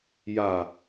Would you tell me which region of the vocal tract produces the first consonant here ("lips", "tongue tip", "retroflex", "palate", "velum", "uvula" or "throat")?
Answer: palate